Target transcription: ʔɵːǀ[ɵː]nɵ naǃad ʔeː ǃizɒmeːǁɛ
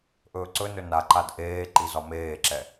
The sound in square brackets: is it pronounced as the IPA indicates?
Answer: no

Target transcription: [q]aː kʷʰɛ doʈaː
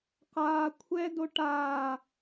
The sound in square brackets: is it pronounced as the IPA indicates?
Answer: yes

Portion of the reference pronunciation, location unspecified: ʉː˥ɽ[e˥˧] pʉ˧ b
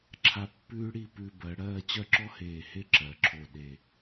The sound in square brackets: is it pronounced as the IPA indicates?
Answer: no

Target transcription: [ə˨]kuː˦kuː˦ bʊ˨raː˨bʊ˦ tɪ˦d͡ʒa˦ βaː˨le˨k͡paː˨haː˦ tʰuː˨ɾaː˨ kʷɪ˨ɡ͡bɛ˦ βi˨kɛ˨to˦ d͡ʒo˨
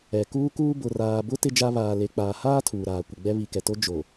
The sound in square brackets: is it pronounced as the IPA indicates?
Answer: no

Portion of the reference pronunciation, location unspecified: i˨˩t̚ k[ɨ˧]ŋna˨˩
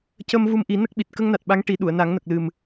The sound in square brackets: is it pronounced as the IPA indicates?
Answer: no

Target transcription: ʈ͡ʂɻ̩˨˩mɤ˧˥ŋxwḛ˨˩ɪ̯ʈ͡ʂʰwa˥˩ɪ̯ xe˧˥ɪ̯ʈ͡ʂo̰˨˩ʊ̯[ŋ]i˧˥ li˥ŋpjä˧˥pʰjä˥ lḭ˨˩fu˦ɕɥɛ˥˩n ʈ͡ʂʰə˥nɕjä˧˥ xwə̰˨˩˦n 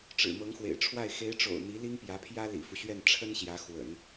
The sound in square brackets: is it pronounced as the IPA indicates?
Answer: no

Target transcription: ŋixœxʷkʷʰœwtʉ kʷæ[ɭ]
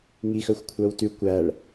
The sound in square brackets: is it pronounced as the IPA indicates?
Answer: yes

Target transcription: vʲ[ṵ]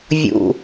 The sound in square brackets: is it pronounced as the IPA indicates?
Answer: yes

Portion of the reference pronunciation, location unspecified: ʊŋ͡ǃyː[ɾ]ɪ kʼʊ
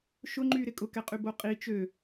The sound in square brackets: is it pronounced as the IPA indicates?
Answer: yes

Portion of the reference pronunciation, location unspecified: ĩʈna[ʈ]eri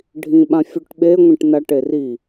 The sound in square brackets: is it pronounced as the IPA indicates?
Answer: yes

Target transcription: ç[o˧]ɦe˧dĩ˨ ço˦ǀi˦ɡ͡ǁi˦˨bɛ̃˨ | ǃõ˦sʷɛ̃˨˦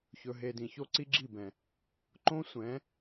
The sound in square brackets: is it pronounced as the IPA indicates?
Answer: no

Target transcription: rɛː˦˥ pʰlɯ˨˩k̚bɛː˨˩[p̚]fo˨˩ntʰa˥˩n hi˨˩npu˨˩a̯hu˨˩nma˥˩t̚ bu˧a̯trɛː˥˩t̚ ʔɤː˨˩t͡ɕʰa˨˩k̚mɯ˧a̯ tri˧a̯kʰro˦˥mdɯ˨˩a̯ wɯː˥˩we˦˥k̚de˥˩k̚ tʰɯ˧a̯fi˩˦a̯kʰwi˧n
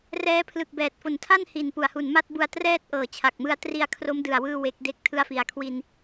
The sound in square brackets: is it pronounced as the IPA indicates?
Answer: no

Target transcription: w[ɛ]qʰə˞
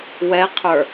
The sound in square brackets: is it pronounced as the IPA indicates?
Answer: yes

